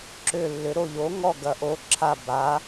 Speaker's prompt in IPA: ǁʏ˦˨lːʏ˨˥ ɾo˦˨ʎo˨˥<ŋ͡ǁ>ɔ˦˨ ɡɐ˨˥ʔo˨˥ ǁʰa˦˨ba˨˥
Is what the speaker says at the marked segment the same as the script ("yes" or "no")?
no